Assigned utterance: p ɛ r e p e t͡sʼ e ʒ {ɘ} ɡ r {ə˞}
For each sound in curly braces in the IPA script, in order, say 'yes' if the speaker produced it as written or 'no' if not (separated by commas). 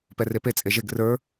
no, yes